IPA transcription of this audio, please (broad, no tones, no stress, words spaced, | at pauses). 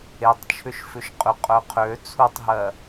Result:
etˤt͡ʃʰʏʃfʏʃ qʼʏqʼœ qʰø t͡sʰutˤɦɜ